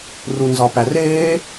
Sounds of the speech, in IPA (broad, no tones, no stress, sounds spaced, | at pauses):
r u n z ɒ p æ r eː